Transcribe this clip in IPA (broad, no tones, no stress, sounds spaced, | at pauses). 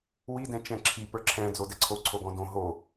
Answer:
w i d ɛ̃ t͡ʃ ɛ̃ ǁʰ i p ə˞ ǁʰ ɛ̃ d͡z o d ɛ ǀʰ o ǀʰ o ɡ ɔ̃ d õ ɦ o